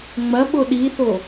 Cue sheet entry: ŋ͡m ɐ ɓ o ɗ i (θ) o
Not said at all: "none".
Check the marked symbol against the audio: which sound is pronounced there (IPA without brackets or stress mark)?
θ